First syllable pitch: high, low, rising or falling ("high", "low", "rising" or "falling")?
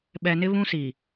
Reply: low